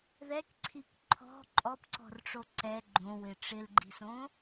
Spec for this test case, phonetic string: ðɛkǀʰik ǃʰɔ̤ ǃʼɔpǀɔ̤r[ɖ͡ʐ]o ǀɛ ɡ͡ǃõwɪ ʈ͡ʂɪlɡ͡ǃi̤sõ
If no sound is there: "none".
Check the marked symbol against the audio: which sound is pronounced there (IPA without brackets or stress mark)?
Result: ʈ͡ʂ